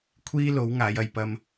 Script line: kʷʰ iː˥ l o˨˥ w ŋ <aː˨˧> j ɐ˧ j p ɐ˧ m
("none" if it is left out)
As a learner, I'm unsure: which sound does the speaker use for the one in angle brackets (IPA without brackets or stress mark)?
aː˨˧